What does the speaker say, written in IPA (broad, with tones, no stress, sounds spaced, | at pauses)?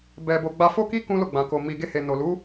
b ɛ˧ b o˧ ɡ͡b a˧ f o˦ k i˦ k ũ˦ l o˦˨ ɡ͡b ã˨ k o˨ m i˨ ɡ e˧ h e˨ n o˨ l u˨˦